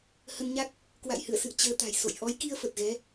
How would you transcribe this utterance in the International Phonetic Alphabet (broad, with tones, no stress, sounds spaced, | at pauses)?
h ə˧ n ɲ a˦˥ k̚ | k w a̰˧˨ j h ɨ̰˧˨ ə̯ s ɨ̰˧˨ ə̯ t͡ɕ əː˧ t̪ a̤˨˩ j s o̰˧˨ j ʔ ɔ˨˦ j k i˧ ə̯ f ə˨˩ t̚ ɣ ɛ˨˦